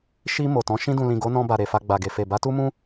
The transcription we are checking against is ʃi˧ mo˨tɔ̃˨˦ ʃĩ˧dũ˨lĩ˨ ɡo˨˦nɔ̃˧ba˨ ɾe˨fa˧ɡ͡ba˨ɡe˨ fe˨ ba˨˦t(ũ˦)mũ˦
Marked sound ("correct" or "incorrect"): incorrect